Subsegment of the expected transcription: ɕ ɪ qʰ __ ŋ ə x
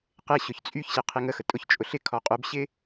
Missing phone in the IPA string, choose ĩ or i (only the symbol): i